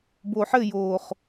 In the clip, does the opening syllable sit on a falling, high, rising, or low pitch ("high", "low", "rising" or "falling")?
low